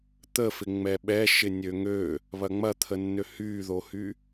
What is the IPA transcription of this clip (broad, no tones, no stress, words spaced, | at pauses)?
t̪əfɪ ŋ͡mɛɓɛʃɪ nʲøŋø | βɐŋ͡mɐt̪ʰənːø hyːðohy